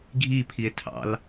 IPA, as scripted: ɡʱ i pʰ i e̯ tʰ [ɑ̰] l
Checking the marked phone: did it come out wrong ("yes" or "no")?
no